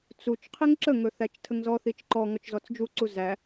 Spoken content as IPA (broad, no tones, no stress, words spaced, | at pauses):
t͡sut͡ʃ qʰiŋǁəŋɵ θæt͡ʃtʰəŋzɔθit͡ʃ ǃɔ ŋɔt͡ʃzɔt͡sd͡ʒuǀu zæ